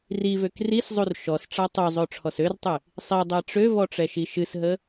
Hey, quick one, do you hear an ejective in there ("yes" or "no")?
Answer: no